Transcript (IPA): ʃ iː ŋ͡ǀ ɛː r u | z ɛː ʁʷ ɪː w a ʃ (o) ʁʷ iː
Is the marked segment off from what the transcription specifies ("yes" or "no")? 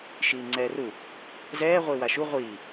yes